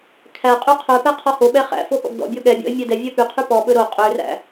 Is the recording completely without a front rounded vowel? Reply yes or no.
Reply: no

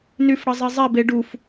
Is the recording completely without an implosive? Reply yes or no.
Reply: yes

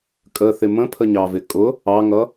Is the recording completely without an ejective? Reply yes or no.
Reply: no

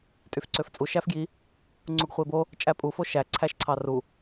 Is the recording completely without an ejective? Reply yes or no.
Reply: no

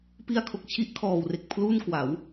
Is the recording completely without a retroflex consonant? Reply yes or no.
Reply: yes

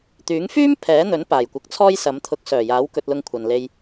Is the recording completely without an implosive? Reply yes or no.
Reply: yes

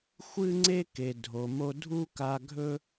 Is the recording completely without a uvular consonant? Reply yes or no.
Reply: yes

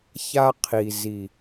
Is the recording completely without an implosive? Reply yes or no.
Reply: yes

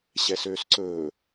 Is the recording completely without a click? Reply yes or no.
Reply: no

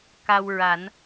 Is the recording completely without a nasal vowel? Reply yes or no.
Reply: yes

